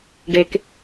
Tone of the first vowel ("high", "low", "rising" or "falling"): low